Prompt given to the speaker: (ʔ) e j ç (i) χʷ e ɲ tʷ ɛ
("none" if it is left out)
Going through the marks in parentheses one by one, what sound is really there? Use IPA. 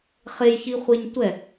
χ, i

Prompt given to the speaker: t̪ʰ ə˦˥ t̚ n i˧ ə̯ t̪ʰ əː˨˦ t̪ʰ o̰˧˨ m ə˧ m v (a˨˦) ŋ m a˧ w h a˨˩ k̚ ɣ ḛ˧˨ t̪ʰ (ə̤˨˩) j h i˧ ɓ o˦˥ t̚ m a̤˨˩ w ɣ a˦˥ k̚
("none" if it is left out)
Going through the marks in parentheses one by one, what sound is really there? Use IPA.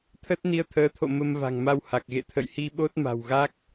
a̤˨˩, ə̰˧˨

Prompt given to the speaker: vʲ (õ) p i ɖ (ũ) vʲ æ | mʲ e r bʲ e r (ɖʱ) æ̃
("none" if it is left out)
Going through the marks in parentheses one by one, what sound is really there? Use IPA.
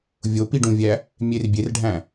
o, ũ, ɖʱ

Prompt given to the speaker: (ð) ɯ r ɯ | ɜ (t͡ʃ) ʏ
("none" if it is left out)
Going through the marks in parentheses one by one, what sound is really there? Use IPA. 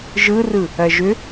ʒ, ʒ

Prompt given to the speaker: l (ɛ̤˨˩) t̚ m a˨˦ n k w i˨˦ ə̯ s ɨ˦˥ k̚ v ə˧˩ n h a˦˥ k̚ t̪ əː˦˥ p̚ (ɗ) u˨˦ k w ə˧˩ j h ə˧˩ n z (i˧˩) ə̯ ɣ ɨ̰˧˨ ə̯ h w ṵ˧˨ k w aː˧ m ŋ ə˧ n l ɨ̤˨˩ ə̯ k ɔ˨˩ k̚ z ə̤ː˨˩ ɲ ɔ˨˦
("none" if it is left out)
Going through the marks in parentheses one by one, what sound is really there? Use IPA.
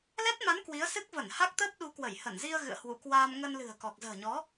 ɛ˦˥, ɗ, i˧

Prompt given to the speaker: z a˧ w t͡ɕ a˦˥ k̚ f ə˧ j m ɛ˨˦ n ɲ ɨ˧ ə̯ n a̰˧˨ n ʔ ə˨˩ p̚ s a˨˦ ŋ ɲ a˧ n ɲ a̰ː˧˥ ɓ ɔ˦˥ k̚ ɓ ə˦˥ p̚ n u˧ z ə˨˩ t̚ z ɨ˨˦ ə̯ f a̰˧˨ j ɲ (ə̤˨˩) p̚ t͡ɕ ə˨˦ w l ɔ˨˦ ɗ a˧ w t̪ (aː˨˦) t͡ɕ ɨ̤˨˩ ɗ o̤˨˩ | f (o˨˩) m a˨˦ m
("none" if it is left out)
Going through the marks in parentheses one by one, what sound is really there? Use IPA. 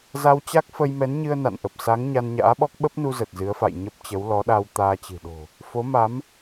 ə˦˥, aː˧, o˨˦

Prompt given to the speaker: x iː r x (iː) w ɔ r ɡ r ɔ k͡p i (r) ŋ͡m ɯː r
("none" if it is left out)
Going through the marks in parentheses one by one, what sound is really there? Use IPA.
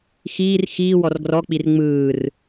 iː, r

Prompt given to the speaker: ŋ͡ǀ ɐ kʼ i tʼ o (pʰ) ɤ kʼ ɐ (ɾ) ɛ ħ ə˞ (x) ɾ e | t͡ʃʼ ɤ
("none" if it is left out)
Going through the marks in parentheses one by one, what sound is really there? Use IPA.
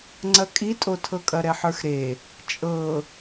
tʰ, ɾ, x

